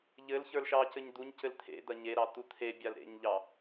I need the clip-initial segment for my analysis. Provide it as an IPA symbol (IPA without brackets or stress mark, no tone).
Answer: ʎ